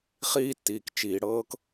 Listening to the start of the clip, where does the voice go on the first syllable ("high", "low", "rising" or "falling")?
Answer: high